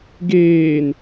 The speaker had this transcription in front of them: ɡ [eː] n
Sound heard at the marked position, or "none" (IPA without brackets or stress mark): eː